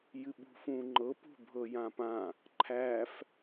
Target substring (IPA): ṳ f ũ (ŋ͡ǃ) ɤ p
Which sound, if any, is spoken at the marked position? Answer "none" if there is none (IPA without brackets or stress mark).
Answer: ŋ͡ǃ